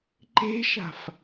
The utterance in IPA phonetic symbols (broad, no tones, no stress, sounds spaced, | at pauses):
ǃ e̤ ʃ a̤ f